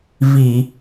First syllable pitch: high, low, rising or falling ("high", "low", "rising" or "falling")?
low